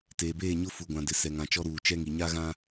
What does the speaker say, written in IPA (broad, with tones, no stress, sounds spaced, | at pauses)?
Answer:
t eː˨ b eː˦˨ ɲ ʊ˦ f u˨ ɡʷ ã˨ d ɪ˨ s ɛ˨ ŋ ã˨ t͡ʃ ɔ˦ ɾ uː˨ t͡ʃ ɛ˦ ŋ i˨ ɲ a˦ ɣ ã˦